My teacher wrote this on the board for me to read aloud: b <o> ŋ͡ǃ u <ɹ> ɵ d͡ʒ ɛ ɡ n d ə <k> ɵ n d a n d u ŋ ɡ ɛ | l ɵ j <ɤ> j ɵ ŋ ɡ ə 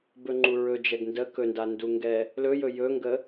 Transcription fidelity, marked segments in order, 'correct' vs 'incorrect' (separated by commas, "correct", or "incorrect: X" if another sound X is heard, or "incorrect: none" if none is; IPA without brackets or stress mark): incorrect: ɵ, correct, correct, incorrect: ɵ